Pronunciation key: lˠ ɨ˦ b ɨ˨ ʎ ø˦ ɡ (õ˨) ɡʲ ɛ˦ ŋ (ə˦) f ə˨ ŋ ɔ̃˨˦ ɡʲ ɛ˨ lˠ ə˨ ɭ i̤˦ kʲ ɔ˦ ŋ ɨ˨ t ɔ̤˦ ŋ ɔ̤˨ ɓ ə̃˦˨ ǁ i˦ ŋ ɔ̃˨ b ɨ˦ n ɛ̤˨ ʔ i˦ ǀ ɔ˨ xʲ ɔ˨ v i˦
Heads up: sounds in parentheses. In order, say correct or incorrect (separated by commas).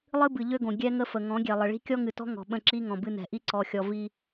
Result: correct, correct